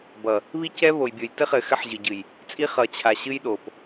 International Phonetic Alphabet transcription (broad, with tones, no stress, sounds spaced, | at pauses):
b ʌ˨ | β i˦ c ɛ˦ β o˨ j bʲ o˨ j t ɘ˦ χ ɘ˨ x ɘ˦ ħ ʑ ɨ˨ ɟ ɨ˨ j | t͡sʼ i˦ χ ʌ˨ t͡ɕʰ a˨ ɕ ɨ˦ j ɗ o˨ p